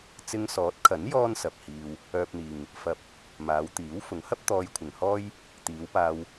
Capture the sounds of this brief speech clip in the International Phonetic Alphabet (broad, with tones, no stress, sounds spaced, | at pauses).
t͡s ɪ˧ ŋ s ɔː˨˥ t̚ kʰ ɐ˨˥ n j ɔː˥ n s ɐ˨ p̚ h iː˧ w | œː˧ p̚ n̪ iː˨ ŋ | f ɐ˧ p̚ | m aː˨˧ w t̪ iː˨˥ w f ʊ˨˥ ŋ h ɐ˥ p̚ t̪ ɔː˧ j kʷʰ ɪ˨ ŋ h ɔː˥ j | t̪ iː˨˧ w p aː˧ w